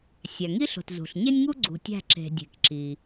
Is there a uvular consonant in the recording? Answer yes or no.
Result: no